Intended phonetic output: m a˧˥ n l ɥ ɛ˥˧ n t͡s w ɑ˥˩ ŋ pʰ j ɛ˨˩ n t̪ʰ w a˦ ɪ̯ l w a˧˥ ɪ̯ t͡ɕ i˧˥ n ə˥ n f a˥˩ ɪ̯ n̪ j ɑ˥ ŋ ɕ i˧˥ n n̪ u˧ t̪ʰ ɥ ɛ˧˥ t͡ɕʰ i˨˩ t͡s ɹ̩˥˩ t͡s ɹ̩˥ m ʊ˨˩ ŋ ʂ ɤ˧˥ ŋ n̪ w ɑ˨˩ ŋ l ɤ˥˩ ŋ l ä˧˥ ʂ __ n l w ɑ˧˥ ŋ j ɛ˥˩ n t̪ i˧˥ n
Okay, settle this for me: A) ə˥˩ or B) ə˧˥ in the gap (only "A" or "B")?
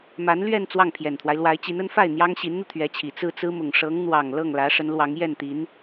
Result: B